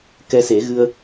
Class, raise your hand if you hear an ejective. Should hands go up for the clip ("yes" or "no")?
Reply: no